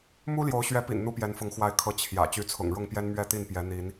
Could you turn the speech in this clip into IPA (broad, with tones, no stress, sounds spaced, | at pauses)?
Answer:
m u˦ l j o˨˦ ʊ̯ ɕ ɥ ɛ˨˦ p ḭ˨˩ n n̪ u˦ p j ɛ˨˦ n f ʊ˨˦ ŋ x w a˨˦ ɪ̯ kʰ ɤ˨˦ t͡ɕʰ j ä̰˨˩ t͡ɕ y˨˦ t͡sʰ ʊ̰˨˩ ŋ ɻ ʊ˥˨ ŋ p j ɛ˦ n m ɥ ɛ˥˨ t̪ i˥˨ n p j ɛ˨˦ n̪ i˨˦ n